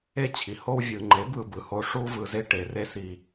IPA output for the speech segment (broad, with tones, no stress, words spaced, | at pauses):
e˦t͡ɕʰi˨ ho˧wvʲɯ˨ ŋ͡ǃe˨˦b ɯ˦bɯ˧ho˦ ʂu˦ vɯ˧ze˦ ʈe˧ re˦si˧